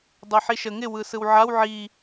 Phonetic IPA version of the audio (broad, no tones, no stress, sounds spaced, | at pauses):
dˤ ɛ ħ i ʃ ə ŋ ɪ w ɯ s ɯ w ʕ a w ʕ i